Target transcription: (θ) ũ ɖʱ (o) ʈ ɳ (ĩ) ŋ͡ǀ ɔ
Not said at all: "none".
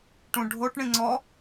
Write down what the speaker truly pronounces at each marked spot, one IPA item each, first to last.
ʈ, o, ĩ

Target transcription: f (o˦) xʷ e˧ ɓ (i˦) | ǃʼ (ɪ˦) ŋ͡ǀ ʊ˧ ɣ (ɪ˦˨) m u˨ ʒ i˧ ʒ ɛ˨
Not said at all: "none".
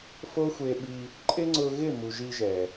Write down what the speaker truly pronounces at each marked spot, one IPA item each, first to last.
o˦, i˧, ɪ˦, ɪ˦˨

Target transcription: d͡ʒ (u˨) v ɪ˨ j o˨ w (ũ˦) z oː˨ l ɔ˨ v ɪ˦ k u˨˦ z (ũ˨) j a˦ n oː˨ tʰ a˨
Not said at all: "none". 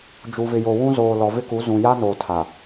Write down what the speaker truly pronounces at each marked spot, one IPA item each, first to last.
u˨, ũ˦, ũ˨

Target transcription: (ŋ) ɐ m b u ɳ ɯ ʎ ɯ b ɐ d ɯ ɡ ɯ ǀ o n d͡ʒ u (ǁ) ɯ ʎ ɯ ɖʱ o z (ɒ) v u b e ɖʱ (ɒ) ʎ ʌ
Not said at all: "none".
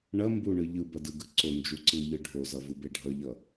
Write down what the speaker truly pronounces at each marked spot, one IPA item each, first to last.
ɳ, ǀ, ʌ, ʌ

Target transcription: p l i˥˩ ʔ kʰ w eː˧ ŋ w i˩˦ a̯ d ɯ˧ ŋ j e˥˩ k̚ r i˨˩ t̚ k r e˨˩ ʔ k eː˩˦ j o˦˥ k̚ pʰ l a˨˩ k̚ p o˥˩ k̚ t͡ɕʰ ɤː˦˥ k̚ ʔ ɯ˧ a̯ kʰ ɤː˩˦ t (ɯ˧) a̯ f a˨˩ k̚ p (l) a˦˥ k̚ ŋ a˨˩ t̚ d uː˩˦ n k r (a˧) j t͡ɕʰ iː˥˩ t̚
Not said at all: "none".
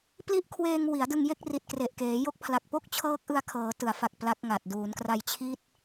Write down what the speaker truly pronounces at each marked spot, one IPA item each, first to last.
ɯ˩˦, l, a˧

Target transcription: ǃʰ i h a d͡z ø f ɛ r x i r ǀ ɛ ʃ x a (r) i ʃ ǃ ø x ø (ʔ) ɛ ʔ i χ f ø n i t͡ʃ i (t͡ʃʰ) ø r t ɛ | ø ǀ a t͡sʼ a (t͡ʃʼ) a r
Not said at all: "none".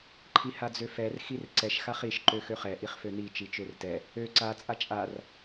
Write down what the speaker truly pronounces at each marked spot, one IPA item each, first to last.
χ, χ, t͡ʃ, t͡ʃʼ

